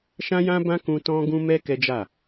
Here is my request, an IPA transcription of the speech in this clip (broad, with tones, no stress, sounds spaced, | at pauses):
ʃ ã˦ j ã˦ b ã˦ k ũ˧ t ɔ̃˦ ɡ ũ˦ m ɛ˦ k ɛ˦ d͡ʒ a˦˨